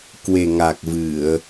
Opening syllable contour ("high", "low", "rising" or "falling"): low